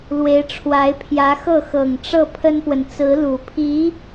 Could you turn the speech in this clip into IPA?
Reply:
lwe˧˥ɪ̯ʈ͡ʂʰwa˧˥ɪ̯pʰjä˧˥xɤ˥˩ xɤ˨˩ŋʈ͡ʂɤ˥˩pʰə˥npwə˨n t͡sɹ̩˧˥lu˨˩pʰi˧˥

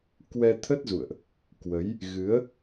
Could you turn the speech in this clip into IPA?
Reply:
kwɛ˧t̪ʰə˦˥t̚zṵ˧˨ə̯ʔ | kwə˨˦j | ɣɨ˨˦ə̯

